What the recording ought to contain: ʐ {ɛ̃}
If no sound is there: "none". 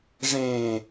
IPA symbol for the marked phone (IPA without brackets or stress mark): ẽ